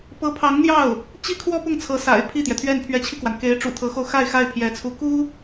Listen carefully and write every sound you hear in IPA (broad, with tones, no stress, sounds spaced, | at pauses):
p ɤ˧˥ pʰ ɑ˧˥ ŋ n̪ j ɑ˥˩ ʊ̯ | t͡ɕ i˥ kʰ w ɔ˥ p ʊ˥˩ ŋ t͡sʰ ɤ˧˥ s a̰˨˩ ɪ̯ pʰ i˥˩ t̪ j ɛ˩ t̪ʰ ɥ ɛ˥˩ n pʰ ɥ ɛ˧˥ t͡ɕʰ i˧ k w a˩ n k e˧˥ ɪ̯ ʈ͡ʂ ṵ˨˩ t̪ʰ ɤ˧˥ x o˧ ʊ̯ x a˥˧ ɪ̯ x a˥˩ ɪ̯ pʰ j ɛ˧˥ t͡sʰ u˧˥ k u˥